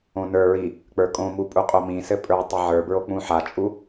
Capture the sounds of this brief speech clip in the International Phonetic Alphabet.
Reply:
õ n ə˞ ɹ i | k͡p ə˞ kʼ õ m u pʼ u qʼ o m ĩ s ɘ pʼ ə˞ tˤ ɘ ʕ ə˞ b ɹ o k͡p ũ ħ a t͡ʃʼ u

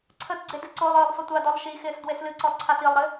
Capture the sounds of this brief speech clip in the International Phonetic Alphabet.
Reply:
ǀʰ ə t ɡ͡ǀ e d ɨ ǀ o lˠ ɨː lˠ f ə tʷ a d ɔ lˠ ʃ i x ɪː s d w e s l ɨ ǀ ɔ lˠ ǀʰ a t i lˠ ɾ ɘ

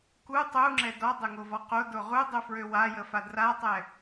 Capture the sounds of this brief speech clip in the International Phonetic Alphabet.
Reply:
k u tˤ u ŋ͡ǁ ɛ d ɔ dˤ ø ŋ o v ɔ q o d o ʁ u dˤ u f ɹ ø w a j ə f a d r a tˤ ɛ

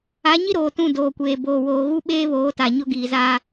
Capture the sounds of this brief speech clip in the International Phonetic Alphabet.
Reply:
a˨˦ ɲ i˦ ɾ oː˨ t ũ˦˨ d oː˨ kʷ eː˨ b oː˨ w oː˨ ɣ u˦ ɓ eː˦ β oː˨˦ t a˨ ɲ ʊ˦ ɡ iː˨ z a˦

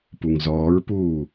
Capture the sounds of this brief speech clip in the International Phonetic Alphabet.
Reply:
p u ŋ z ɔː ɹ p uː

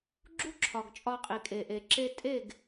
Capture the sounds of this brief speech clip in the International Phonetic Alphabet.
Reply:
ɡ͡ǁ u˦ ǁʰ ɒ˨ ɡ t͡ʃʼ ɒ˧ qʼ i˨ kʼ e˨ ʔ e˨ ǁ e˧ tʼ e˦˨ ɡ

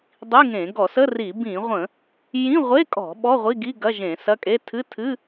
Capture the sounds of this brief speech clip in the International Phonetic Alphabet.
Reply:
dˤ i˧˥˧ ŋ ẽ˧˩˧ ɡ ɔ˧˩˧ s ə˧˥˧ r i˧˩˧ b ĩ˧˩˧ ʁʷ ə̃˧˩˧ | j ĩ˧˥˧ ʁʷ e˧˥˧ kʼ ɔ̤˧˩˧ ɓ ɔ˧˥˧ ʁʷ i˧˥˧ ɡ i˧˥˧ ɡ ɐ˧˥˧ ʒ ẽ˧˩˧ s ɐ˧˥˧ kʼ e˧˥˧ tʰ ɨ˧˥˧ tʰ ɨ˧˥˧

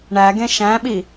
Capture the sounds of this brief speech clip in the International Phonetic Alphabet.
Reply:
ɳ æ ɡ ẽ ʃ æ̃ ɓ i

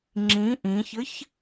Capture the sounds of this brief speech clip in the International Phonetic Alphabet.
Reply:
ŋ͡ǁ ĩ ʔ ĩ ç ɘ ç

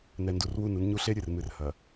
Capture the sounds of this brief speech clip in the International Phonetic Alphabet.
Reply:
n ɛ˨ n d u˨ r w u˦˨ n u˦ n ɲ u˦ ɬ e˦ ɾʲ ɨ˨ r m ɨ˨ r h ɐ˨

